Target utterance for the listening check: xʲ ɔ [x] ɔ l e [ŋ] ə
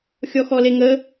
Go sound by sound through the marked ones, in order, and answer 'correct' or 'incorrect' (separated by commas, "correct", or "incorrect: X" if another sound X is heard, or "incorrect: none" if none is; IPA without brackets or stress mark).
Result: correct, correct